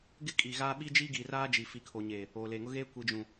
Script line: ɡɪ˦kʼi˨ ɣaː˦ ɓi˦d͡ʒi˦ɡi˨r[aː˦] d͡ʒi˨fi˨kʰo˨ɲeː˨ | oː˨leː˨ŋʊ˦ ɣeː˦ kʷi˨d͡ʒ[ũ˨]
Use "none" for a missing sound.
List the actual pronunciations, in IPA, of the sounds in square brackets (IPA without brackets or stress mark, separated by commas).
aː˦, ũ˨